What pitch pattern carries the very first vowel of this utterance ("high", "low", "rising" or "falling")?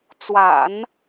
low